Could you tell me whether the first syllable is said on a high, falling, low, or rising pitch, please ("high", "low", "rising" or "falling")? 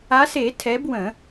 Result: rising